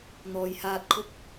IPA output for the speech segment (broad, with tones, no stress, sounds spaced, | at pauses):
n̪ ɔː˨ j h aː˧ t̚ kʰ ʊ˥ k̚